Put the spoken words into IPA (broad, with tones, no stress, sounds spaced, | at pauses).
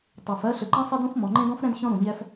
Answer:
tˤ o˨ f ɜ˦ ɬ ʏ˨ ǃ ɛ̃˦ sˤ e˦ d ũ˦ f m ɔ̃˨ ŋ͡ǃ ẽ˦ d ɔ̃˦ f ɾ ɛ̃˦ d ç ɔ̃˦ ɾ ũ˨ ɲ ɛ˦ f